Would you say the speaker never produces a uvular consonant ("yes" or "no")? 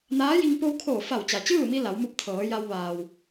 yes